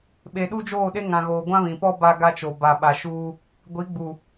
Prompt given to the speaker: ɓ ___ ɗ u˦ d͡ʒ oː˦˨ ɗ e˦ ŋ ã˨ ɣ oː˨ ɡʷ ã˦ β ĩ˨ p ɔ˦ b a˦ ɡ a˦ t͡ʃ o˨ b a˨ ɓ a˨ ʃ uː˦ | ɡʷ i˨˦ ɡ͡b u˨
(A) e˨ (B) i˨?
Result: A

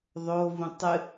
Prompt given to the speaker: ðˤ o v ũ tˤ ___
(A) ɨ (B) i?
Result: A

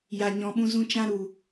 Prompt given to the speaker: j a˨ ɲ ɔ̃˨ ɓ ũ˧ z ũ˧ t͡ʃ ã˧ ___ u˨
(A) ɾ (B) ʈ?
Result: A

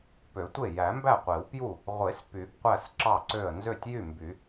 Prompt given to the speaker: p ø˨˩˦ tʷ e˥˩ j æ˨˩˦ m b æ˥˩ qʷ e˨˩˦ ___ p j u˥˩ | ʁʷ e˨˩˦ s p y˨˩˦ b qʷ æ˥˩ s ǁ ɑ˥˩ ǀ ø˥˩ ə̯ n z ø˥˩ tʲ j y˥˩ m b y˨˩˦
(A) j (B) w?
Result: B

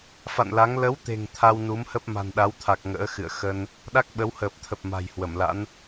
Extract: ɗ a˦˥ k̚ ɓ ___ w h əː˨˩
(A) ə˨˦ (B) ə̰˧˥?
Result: A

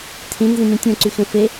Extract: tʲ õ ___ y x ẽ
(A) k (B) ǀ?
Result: B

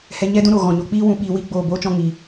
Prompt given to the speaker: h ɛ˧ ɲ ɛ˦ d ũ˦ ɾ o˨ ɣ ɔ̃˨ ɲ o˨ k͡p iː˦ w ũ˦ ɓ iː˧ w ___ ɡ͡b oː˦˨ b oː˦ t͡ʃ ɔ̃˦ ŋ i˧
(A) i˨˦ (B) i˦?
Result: B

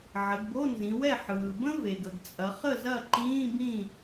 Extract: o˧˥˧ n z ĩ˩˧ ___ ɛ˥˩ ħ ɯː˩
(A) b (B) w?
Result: B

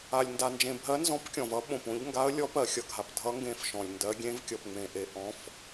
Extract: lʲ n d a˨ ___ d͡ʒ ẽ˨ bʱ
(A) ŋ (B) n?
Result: B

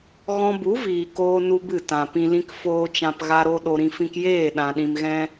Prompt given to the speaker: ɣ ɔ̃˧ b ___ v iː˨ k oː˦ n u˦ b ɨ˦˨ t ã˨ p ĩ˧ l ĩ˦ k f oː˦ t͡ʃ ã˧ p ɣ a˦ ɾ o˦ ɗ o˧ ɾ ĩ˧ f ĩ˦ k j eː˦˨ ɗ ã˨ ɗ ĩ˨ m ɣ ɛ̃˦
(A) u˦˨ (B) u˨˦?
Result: B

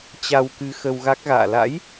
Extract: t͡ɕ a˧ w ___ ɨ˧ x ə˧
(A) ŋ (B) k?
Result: B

